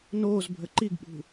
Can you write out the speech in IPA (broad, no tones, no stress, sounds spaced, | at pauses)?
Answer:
n oː z bʱ ə ǃ i ɡ ɓ ṳ